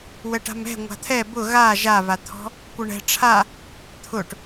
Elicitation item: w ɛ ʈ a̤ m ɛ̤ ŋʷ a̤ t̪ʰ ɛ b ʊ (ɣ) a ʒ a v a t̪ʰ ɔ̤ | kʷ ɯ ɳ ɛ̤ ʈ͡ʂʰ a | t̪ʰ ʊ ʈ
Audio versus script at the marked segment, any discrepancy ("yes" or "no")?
no